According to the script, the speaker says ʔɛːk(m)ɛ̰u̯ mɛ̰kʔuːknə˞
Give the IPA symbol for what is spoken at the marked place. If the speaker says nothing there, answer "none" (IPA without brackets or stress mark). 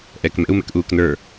m